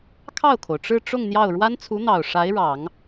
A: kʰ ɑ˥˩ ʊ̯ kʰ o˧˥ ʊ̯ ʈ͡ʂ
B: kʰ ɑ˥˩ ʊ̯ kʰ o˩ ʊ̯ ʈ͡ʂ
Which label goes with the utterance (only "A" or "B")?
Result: B